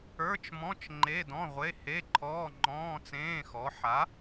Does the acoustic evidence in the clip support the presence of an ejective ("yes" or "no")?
no